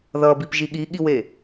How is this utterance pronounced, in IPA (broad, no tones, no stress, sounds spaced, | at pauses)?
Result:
ð ʌ b i p ʒ i ɠ i ɠ i w e